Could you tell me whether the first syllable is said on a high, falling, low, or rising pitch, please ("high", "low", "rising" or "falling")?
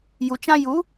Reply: low